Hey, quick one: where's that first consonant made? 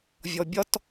lips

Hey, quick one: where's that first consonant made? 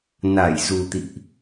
tongue tip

